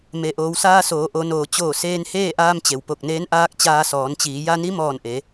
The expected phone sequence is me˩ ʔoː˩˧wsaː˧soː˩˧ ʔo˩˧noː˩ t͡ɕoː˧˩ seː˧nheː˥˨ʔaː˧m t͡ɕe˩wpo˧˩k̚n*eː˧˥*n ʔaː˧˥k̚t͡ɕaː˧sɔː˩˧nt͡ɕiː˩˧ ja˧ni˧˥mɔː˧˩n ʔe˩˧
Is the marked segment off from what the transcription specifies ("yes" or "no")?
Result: no